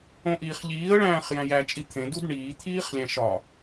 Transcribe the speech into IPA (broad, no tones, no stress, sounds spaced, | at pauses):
õ ʔ iː χ ʎ iː ə̯ ɭ æ̃ː χ j æ̃ j æ t͡ʃʼ i t̪ʰ ẽ d u d ɳ iː t̪ʰ iː χ lʲ æ̃ ʃ ɒ